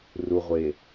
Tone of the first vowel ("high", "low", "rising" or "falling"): low